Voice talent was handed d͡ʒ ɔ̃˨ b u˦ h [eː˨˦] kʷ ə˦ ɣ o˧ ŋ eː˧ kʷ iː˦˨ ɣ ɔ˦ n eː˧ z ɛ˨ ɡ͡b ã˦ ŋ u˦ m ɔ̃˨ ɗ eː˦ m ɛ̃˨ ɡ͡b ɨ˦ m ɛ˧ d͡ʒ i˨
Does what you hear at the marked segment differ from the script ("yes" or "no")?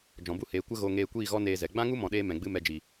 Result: no